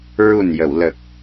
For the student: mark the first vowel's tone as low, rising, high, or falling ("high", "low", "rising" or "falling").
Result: low